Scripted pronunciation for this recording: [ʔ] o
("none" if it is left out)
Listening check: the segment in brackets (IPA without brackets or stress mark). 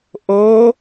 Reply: ʔ